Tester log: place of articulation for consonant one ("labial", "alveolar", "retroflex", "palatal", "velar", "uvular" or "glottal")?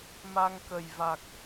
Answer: labial